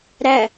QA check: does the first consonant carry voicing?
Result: yes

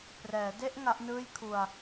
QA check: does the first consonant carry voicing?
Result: no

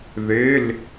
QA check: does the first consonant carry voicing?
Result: yes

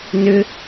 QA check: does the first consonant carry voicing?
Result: yes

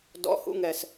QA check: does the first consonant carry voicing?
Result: yes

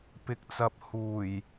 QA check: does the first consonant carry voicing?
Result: no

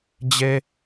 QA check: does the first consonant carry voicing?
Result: yes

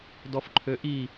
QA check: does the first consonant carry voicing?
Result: yes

